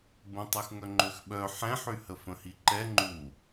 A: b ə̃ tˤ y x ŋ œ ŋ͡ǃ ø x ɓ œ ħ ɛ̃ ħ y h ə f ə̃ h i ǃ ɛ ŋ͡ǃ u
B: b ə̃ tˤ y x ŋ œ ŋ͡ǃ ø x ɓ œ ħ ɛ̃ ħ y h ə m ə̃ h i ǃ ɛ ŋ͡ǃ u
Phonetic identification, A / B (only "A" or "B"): A